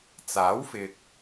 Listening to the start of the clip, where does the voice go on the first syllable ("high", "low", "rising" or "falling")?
rising